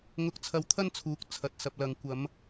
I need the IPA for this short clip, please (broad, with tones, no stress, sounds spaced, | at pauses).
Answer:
ŋ ʊ˧ k̚ t͡sʰ ɐ˧ w t̪ʰ ɐ˥ n t͡sʰ uː˨˥ k̚ t͡sʰ ɐ˧ t̚ s ɐ˧ p̚ l ɐ˨ ŋ kʷ ɐ˨˧ m